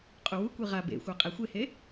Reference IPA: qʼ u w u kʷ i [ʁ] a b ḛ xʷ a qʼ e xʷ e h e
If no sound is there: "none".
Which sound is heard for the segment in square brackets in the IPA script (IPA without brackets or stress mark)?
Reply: ʁ